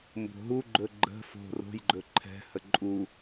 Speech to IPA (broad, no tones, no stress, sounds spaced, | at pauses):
m b o̤ ɦ u ɡ͡ǃ ɵ ɡ͡ǃ ə̤ f o̤ r o̤ j ɡ͡ǃ ɵ ǃʰ ɛ̤ h ə ǃʼ u